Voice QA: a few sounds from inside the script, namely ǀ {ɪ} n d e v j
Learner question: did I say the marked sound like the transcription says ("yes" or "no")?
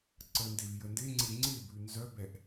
no